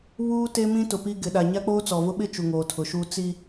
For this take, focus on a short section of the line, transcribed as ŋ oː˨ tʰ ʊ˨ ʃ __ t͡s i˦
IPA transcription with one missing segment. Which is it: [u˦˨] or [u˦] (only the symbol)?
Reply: u˦